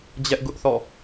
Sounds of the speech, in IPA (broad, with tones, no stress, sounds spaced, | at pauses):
d͡ʑ ɛ˦ ʔ ɡ ʊ˦ ʔ θ ɔ̰˦˨